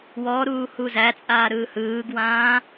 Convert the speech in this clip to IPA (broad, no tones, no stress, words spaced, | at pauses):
wɔ ɾuːhuzæt͡sʼaː ɾɯːhɯːɡwãː